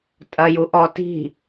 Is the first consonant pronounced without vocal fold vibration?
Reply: yes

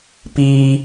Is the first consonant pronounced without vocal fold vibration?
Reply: yes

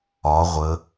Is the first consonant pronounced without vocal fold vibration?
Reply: no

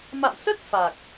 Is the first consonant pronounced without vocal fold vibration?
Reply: no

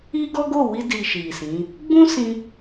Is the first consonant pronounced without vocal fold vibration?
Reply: no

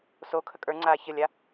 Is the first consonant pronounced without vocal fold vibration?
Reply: yes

